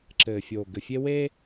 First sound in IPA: ǁ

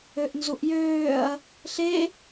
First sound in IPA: ø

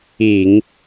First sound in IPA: i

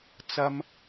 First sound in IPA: t͡s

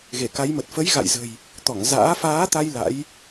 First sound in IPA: ɣ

